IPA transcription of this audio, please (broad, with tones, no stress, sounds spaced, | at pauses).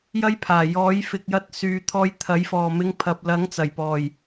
j ɐ˥ j pʰ aː˨˩ j ɔː˨˥ j f ɪ˨ k̚ j ɐ˧ t̚ s yː˨˧ t̪ʰ ɔː˧ j t̪ʰ ɐ˨˥ j f ɔː˨˩ m ɪ˧ ŋ pʰ ɐ˨ p̚ l ɐ˨˥ ŋ t͡s ɐ˨˩ j p ɔː˨˩ j